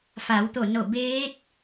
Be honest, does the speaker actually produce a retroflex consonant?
no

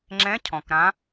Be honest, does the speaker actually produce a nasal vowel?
yes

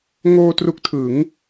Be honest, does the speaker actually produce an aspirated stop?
yes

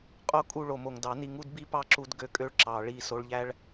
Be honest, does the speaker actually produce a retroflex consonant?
yes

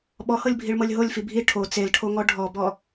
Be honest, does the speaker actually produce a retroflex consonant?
yes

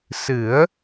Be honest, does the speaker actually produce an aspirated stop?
no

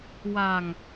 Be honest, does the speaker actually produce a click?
no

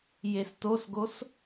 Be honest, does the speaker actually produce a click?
no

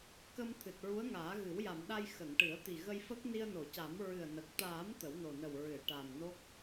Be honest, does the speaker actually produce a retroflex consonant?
yes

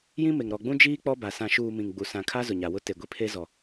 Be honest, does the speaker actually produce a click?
no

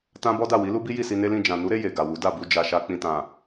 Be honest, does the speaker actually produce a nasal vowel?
yes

